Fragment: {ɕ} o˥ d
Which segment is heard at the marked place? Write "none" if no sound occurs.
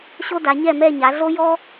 ɕ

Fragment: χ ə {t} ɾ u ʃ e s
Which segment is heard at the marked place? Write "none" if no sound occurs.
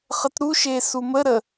t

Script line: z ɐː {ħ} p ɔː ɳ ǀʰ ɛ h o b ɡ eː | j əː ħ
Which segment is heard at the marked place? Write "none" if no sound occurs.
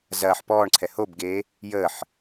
ħ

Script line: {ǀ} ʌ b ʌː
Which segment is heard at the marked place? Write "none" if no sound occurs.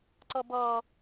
ǀ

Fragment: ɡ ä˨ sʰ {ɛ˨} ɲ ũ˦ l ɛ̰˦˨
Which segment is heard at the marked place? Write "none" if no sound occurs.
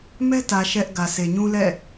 e˨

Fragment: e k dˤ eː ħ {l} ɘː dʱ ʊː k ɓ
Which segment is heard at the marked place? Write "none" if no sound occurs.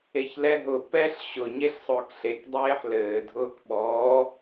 l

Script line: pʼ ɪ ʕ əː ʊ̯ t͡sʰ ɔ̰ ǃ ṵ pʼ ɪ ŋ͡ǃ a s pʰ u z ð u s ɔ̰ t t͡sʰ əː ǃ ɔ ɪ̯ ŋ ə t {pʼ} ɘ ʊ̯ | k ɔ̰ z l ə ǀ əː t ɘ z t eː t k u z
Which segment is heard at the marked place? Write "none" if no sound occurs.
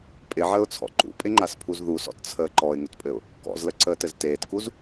pʼ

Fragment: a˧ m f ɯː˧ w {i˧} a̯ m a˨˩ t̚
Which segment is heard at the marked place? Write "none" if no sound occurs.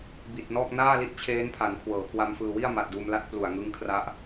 i˥˩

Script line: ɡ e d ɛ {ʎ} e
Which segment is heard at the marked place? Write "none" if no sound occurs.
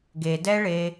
ɭ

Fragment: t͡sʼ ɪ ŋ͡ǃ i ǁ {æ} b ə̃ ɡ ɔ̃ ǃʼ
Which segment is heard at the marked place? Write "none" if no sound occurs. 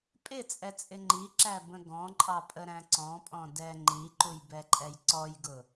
æ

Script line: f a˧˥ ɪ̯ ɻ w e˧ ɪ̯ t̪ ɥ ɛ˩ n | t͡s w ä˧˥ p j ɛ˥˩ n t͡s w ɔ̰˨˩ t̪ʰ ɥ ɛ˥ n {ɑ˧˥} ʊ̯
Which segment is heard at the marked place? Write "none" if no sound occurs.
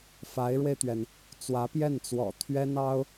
ɑ˥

